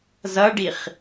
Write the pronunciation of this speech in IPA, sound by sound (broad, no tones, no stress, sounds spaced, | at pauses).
z ʌ ɖ i χ